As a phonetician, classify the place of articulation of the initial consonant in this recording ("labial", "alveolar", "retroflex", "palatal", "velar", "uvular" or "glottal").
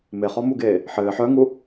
labial